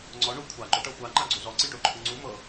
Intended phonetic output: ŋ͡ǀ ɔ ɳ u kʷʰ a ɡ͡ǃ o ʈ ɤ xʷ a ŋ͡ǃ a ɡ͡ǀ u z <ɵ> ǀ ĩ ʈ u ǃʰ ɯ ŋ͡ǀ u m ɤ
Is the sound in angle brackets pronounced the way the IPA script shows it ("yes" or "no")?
no